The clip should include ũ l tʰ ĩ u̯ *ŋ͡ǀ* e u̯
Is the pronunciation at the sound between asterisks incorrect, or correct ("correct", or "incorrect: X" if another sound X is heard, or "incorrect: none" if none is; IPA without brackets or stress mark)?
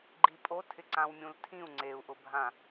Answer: correct